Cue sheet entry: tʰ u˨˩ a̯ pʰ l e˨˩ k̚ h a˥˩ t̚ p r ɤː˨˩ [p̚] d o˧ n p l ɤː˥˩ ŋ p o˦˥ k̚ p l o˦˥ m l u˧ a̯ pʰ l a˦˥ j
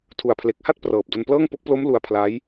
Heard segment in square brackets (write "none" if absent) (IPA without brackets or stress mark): p̚